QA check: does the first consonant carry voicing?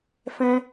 no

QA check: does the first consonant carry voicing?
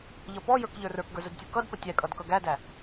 yes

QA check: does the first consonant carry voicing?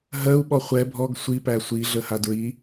yes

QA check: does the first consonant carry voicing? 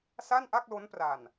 no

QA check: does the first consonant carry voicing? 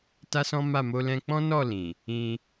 no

